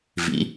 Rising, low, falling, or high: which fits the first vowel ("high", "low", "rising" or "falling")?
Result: rising